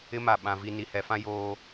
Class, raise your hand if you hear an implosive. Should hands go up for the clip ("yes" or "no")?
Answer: yes